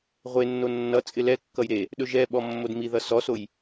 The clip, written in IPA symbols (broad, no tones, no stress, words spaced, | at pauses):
ʁʷenːo nːʌt͡sʼɪ lɛkːʌj ɾe | ɗɵʒɛɓɔ mːodmiðʌ sɔsoj